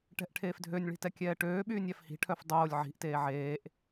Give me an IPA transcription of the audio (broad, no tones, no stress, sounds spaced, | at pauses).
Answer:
ʈ ɛ̤ ʔ ʈʰ eː f dʱ ø nʲ ɭ i̤ t ɛ kʲ ɛː ʈ øː ɓ yː nʲ æ f h i̤ ʈʰ œ f dˤ oː lʲ ʕ i̤ ʔ t eː ʕ eː ʔ